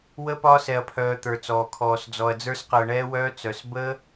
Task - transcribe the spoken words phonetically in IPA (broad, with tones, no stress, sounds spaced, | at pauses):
w ə˦ p ɒː˦ s ɛ˧ ɐ̯ pʰ œː˧ t̪ ə˞˧ t͡s ɔː˧ kʰ ɔː˧ s d͡z ɔ˧ ɐ̯ d͡z ə˞˦ s q əː˧ ɳ ɛː˦ w œː˦ t͡s œ˧ s b ə˦